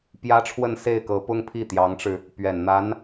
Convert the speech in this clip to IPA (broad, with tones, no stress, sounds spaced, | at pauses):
p j ä˥ ʈ͡ʂʰ w ə˥˧ n s e˥˩ ɪ̯ k ɤ˧˥ p ʊ˥ ŋ pʰ i˥˩ t̪ j ɑ˧˥ ŋ ʈ͡ʂ ɻ̩˧ | p ɥ ɛ˨˩ n n̪ a˧˥ n